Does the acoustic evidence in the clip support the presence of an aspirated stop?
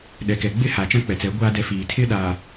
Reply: yes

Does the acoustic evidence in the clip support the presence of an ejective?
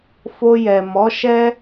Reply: no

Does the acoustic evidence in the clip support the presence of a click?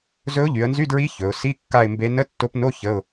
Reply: no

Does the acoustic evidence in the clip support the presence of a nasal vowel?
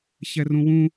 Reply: yes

